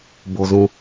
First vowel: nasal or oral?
oral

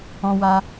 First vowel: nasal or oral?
nasal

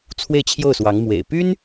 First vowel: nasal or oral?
oral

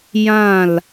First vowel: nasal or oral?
nasal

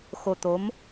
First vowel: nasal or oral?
oral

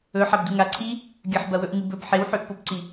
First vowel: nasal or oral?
oral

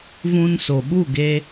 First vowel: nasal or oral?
nasal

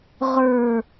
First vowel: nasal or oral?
oral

